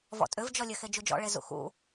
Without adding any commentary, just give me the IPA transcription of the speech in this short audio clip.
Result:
v ɔ̰ tʼ ʏ v d͡ʒ ɔ lʲ ɘ x e d͡ʒ u d͡ʒ ɔ̰ ɭ e z ṵ x ṵ

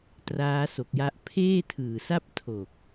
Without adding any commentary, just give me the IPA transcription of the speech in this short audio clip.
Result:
t r aː˦˥ s o˨˩ k̚ j a˦˥ ʔ pʰ eː˥˩ tʰ ɯː˨˩ s a˥˩ p̚ tʰ o˨˩ k̚

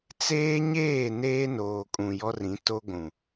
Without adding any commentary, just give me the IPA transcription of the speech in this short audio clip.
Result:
t͡s eː˦ ɲ eː˦˨ n eː˦ n oː˨ kʼ ũ˨ j ɔ˦ r ĩ˨˦ t o˦ ɡʷ ũ˨

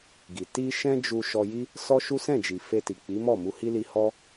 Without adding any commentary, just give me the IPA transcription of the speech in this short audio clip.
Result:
ɡ i˨ t i˧ ʃ ɛ̃˦ d͡ʒ u˧ ʃ ɔ˧ j i˦ | s ɔ˦ ʃ u˦ s ɛ̃˦˨ d͡ʒ i˨ f e˧ t i˨ k͡p i˨˦ m ɔ˦˨ m u˧ h i˦ l i˧ h ɔ˧

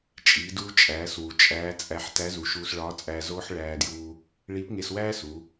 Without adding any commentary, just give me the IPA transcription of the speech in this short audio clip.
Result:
t͡ʃʼ iː˩˧ d uː˧ t͡ʃʼ æː˩˧ s w u˩ t͡ʃʼ æː˧˥ t͡sʼ æ˧ ħ t æ˧˥ z u˩˧ ʃ uː˧ s ɭ ɒː˧˥ t͡sʼ æː˧ z oː˥ ħ ɭ æː˧ d j uː˧ | ɭ iː˧˥ p ŋ e˧ s w æː˥ s u˩˧

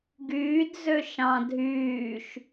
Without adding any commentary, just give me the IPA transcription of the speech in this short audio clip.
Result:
ɡ yː d z ø ʃ ɑ̃ dʱ yː ʃ

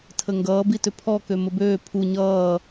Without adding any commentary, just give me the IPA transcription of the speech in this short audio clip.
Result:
tʰ ə ŋ ɡ ʌː b i t ʏ pʰ ɔ k ø m ə b øː pʰ u ɲ ʌː

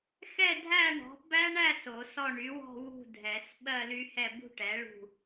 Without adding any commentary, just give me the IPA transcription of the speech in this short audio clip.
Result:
x ɛ˥˨ dʱ æ˥˨ ɳ ɔ̤˩˥ b æ˦˥ ɳ æ˥˨ s o˨˩˦ s ɔ˥˨ ɳ y˩˥ w ɔ̤˥˨ w ṳ˥˨ dʱ ɛ˨˩˦ s ɓ ɜ˥˨ l y˦˥ h ɛ˥˨ b ṳ˥˨ ʈ ɛ˩˥ ɭ ṳ˥˨

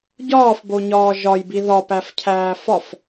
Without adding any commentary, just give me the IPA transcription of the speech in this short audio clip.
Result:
ɟ ɒː f b o ɲ ɒː ʒ ɒ j b i ð ɒ p æ f cʰ æː f ɒ f

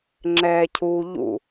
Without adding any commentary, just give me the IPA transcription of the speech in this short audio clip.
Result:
ŋ͡ǁ ɛː cʰ uː ʎ ṵ

